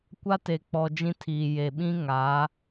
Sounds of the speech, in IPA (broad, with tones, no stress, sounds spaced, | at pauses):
kʷ a˦ t e˨ k͡p ɔ˨ d͡ʒ ĩ˦ tʰ iː˨ j e˨ ɓ ĩ˦ ŋ a˨˦